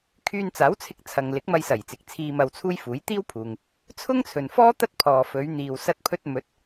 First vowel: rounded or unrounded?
rounded